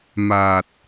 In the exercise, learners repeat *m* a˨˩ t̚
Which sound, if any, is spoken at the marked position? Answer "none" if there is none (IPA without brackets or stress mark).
m